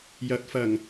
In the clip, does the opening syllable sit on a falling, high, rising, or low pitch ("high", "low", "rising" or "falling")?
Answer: rising